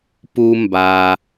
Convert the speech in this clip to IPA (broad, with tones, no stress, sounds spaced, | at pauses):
p u˧ m b a˧